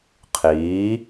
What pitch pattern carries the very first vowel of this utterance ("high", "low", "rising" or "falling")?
rising